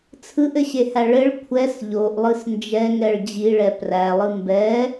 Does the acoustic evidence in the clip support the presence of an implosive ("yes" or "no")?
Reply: no